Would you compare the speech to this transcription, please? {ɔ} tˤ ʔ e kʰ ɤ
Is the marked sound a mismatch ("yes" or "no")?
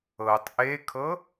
yes